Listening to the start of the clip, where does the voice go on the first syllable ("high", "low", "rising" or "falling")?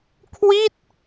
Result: falling